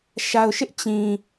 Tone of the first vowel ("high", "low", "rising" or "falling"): low